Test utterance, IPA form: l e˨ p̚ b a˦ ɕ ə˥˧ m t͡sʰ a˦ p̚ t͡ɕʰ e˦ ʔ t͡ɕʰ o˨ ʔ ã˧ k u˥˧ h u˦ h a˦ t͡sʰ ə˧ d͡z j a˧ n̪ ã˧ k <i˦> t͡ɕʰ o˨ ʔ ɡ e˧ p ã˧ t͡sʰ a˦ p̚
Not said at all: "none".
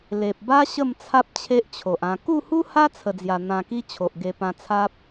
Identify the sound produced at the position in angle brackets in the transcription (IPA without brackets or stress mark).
i˦